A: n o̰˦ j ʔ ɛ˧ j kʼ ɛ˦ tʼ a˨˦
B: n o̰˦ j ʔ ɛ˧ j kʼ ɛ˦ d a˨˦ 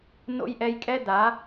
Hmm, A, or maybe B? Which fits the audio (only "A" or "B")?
B